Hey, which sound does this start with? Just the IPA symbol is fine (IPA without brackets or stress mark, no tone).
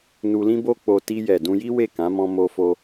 n